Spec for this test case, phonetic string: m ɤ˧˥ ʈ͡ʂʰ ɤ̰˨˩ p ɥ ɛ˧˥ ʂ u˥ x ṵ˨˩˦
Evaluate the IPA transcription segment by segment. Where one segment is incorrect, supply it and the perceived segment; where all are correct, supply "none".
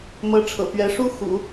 none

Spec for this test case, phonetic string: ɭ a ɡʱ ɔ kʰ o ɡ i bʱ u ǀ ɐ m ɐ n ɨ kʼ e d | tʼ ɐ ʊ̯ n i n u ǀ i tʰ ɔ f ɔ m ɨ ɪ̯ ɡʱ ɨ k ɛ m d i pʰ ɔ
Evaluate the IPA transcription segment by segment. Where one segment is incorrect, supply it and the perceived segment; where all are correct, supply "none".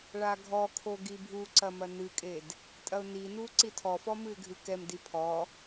none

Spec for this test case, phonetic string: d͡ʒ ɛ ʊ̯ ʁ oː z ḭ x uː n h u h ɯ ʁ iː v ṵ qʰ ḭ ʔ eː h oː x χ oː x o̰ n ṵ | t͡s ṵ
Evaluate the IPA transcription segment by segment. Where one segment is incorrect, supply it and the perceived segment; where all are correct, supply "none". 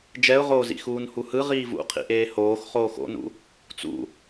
none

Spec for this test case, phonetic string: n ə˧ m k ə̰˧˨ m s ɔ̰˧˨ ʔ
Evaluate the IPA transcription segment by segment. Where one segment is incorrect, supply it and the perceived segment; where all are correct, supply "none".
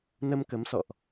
ə̰˧˨ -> ə˨˦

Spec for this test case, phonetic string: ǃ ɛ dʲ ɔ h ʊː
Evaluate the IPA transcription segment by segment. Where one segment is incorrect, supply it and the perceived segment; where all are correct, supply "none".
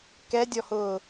ǃ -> k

